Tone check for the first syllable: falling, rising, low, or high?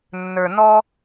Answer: low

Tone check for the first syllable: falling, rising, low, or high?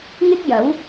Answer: high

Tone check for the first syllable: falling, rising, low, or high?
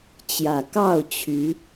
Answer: low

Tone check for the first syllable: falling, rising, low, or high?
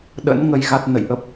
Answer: rising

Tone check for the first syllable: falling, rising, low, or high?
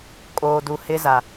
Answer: low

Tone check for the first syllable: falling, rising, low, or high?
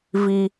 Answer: high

